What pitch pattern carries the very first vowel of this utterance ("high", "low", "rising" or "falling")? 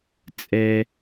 high